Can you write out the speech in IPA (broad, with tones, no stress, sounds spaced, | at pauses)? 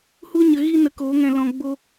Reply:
h u˦ ɲ ə˧ ɣ i˦ n ə˧ k o˨˦ ŋ ɛ̃˧ l ɔ̃˧ ɡ͡b o˦